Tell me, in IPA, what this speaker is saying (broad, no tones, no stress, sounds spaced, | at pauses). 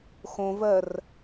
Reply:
x õ v ɜ r